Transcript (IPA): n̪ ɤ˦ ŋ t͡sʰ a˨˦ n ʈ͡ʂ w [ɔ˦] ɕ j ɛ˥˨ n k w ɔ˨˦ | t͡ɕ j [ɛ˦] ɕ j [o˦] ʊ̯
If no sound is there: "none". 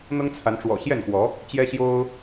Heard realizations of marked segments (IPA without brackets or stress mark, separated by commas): ɔ̰˨˩, ɛ˦, o˦